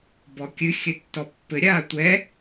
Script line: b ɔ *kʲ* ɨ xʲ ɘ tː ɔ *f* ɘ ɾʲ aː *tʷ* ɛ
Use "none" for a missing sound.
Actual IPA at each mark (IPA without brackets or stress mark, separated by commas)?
kʲ, pː, tʷ